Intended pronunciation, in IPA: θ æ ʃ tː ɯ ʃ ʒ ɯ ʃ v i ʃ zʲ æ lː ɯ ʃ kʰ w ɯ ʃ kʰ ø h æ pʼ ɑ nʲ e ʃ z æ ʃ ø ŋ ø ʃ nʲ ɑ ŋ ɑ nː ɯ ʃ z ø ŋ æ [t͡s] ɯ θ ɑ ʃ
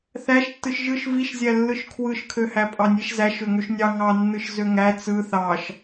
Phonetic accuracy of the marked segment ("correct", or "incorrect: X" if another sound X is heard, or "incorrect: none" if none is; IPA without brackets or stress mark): correct